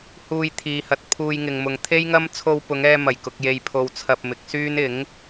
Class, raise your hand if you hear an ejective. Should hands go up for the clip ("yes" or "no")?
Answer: no